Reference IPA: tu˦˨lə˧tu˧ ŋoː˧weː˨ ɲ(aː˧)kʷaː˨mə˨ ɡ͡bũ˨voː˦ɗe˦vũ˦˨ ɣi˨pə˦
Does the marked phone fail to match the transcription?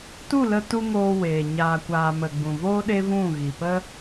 yes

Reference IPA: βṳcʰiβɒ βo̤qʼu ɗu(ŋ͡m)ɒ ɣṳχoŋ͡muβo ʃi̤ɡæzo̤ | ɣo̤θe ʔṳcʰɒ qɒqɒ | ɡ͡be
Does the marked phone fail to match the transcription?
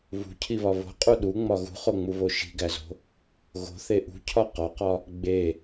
no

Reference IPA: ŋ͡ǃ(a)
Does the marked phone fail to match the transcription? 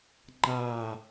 no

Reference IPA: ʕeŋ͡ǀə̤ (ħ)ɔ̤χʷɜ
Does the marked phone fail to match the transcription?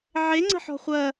no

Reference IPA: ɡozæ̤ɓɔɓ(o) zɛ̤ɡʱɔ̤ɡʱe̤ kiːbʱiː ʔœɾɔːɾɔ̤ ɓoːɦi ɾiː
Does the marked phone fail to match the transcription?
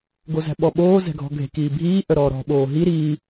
yes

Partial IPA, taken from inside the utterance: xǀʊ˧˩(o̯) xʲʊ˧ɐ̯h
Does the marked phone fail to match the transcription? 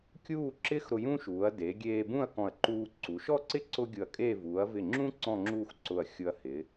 yes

